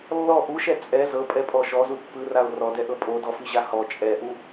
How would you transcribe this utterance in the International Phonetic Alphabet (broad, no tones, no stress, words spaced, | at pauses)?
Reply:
lːɔ ʔuʃɛ t͡sʼɛ zɤpʼɛpʼɔ ʃɔzu pːɯrao̯ rɔdɛʔɤ pʼodɔfiʑa hɔ t͡ʃʼɛʔu